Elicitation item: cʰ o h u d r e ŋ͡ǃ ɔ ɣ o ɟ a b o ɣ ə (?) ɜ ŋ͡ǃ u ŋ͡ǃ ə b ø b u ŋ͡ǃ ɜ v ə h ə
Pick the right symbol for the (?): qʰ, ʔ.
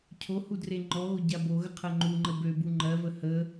qʰ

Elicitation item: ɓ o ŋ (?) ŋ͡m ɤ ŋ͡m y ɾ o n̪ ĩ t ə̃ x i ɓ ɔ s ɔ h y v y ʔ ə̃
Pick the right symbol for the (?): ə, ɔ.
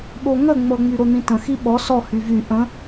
ə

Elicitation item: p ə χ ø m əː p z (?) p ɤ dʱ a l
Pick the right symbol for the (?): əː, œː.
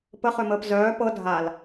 œː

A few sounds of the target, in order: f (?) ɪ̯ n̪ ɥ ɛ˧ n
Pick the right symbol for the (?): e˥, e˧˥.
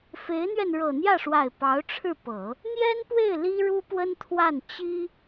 e˧˥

